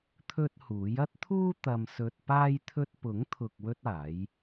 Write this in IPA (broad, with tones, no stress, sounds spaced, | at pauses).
t̪ʰ ɵ˥ t̚ h uː˨˥ j ɐ˥ t̚ t̪ʰ uː˥ t̪ ɐ˧ m s ɵ˧ t̚ p aː˥ j t̪ʰ ɵ˥ t̚ p ʊ˨˥ ŋ t̪ʰ ʊ˨ k̚ w ɵ˥ t̚ aː˨˥ j